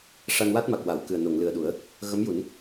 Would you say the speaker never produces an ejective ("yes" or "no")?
yes